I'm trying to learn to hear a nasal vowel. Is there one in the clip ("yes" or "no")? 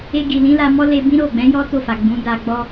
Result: yes